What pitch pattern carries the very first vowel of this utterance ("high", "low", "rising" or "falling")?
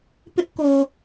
high